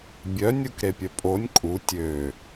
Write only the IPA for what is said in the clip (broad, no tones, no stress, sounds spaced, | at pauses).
bʲ œ nʲ u k ɾ e pʲ œ pʼ o nʲ kʼ u tʲ ø